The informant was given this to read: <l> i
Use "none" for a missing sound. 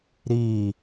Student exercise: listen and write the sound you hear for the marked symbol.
ɾ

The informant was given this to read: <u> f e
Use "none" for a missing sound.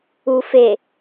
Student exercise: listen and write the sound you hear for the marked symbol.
u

